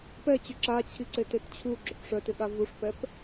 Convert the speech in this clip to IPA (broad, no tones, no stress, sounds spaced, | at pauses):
p ɛ t͡ɕ ʏ ǁ a t͡ɕʰ i ǀ e t e t t͡ɕʰ u ɡ͡ǁ ʏ p ʂ œ t ɪ ɠ a v u ʂ p ɛ p